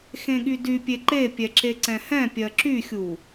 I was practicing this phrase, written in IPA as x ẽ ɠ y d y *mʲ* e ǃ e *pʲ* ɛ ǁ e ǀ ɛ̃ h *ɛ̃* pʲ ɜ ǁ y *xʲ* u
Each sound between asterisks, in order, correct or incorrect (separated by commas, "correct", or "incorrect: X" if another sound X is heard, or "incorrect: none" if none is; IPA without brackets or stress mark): incorrect: pʲ, correct, correct, correct